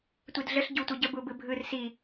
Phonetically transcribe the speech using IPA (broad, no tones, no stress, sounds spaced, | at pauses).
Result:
tʷ i d ɮ ə ɬ ɟ u tʷ ɘ ɟ ə b u b ɯ bʱ ɯ r s i